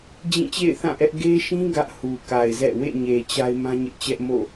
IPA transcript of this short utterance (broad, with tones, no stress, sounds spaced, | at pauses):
d͡ʑ ĩ˦˨ t͡ɕ ḛ˦˨ ɪ̯ θ ã˦˨ ʔ ɛ˦ ʔ ɡ e˦ ʃ ĩ˦ ɡ ä˦ ʔ h u˨ k a˨ ɪ̯ z ɛ̰˦˨ w ḛ˦˨ ɲ e˨ t͡ɕ a˦ ɪ̯ m ã˦ ɲ ɪ˦ ʔ t͡ɕ ɛ˦ ʔ m o̰˦˨